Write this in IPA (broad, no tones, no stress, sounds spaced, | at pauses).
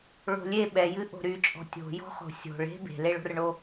ɭ o̤ lʲ e ɓ ɛ j ɨ ʔ o̤ ɾ y t͡ʃʼ ɔ̤ tʲ o̤ j ɔ̤ χ o̤ sʲ o̤ ɭ e̤ b e̤ l e ɭ o̤ r ɳ o